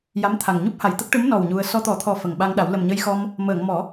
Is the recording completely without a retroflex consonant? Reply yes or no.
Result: no